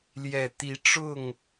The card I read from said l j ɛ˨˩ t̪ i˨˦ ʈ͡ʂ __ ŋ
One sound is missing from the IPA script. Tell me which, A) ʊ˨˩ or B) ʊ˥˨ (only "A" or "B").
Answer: B